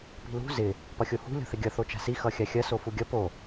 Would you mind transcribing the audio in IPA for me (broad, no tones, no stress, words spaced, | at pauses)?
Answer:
pi̤lṳ zɪ | pʌxʲohṳ lʲo̤θɪɡʲʌ θot͡ʃa̤si xʌxʲaxʲɐ sofuɡʲʌ po